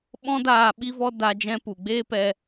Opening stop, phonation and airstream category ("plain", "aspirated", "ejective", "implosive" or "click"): implosive